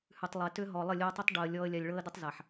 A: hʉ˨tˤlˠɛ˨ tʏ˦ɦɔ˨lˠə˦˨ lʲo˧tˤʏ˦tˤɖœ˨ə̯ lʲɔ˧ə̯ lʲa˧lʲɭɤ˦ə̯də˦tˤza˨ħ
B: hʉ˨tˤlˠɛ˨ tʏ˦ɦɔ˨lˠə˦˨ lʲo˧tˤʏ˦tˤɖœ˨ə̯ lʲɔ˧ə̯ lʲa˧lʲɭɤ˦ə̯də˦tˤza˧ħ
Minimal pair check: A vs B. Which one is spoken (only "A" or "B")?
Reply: A